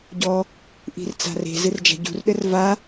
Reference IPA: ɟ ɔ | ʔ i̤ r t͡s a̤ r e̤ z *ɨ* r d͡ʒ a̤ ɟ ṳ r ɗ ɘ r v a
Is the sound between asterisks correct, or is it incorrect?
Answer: correct